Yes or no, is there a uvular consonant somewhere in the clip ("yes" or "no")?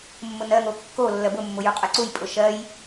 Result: yes